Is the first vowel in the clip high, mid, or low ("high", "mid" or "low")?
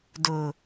high